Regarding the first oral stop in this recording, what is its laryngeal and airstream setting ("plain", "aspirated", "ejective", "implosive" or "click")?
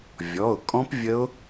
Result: ejective